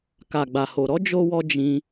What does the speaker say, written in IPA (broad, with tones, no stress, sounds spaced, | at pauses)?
k a˨ ɡ͡b a˨ h o˨ ɾ ɔ˨˦ d͡ʒ o˦ w ɔ˦ d͡ʒ ĩ˧